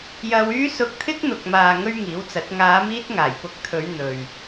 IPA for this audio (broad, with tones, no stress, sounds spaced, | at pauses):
j ɐ˧ w yː˥ s ʊ˧ k̚ t̪ʰ ɪ˥ k̚ n̪ ʊ˨ k̚ m aː˨ ŋ ɵ˥ ɥ ŋ iː˨˥ w t͡s ɐ˨˥ t̚ ŋ aː˨˧ m iː˥ t̚ ŋ aː˨˩ j p ʊ˧ k̚ t̪ʰ ɵ˨˧ ɥ n̪ ɵ˨ ɥ